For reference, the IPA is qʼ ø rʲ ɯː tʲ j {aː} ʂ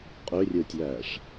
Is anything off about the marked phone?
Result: yes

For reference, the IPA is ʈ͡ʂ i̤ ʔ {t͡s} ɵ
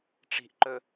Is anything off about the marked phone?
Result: yes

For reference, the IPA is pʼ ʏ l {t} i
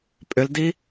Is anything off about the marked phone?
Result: yes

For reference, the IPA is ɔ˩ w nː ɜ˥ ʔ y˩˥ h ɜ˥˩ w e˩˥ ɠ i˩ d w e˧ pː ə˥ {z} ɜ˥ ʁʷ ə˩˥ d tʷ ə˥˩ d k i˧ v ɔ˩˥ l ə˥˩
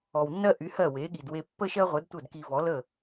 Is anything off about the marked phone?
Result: yes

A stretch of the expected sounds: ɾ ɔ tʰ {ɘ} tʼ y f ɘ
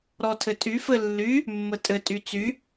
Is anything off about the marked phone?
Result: no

